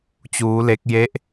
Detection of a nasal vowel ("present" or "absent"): absent